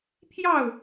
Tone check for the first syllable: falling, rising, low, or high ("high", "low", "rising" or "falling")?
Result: falling